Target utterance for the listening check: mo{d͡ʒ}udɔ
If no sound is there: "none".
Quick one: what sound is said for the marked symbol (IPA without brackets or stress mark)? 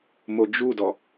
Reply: d͡ʒ